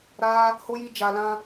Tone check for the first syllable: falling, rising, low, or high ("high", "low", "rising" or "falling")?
high